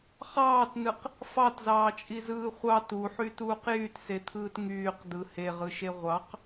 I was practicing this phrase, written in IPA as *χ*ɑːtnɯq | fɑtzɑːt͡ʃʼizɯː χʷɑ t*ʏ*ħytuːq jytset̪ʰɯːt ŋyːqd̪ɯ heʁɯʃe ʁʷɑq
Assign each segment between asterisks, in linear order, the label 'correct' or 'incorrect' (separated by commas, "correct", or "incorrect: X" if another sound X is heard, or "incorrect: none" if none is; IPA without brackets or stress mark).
correct, incorrect: u